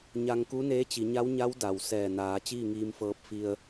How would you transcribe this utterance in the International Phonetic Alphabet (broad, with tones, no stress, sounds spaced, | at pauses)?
ɲ a˧ ŋ k u˧˥ n eː˧˥ t͡ɕ i˩˧ ɲ a˧˥ w ɲ a˧˥ w d a˩ w s ɛː˧˩ n aː˩˧ t͡ɕ iː˥˨ ŋ iː˧ m f ɤː˧ p̚ f i˧ ə̯